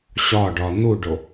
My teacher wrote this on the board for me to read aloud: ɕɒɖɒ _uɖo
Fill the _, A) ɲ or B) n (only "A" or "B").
B